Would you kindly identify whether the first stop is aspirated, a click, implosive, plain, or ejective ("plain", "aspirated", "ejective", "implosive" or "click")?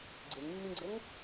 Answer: click